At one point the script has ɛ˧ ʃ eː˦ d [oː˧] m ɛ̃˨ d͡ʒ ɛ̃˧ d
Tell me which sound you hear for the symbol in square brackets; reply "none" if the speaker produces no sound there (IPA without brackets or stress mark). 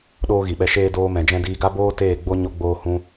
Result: oː˧